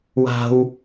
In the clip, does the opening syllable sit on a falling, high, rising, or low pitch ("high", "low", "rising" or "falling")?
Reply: high